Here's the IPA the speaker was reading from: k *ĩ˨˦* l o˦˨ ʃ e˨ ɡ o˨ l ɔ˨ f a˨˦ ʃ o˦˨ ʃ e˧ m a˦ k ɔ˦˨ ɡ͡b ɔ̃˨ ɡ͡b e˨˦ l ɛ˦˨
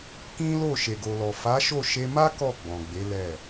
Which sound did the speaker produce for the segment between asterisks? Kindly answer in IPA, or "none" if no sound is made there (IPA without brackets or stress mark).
ĩ˦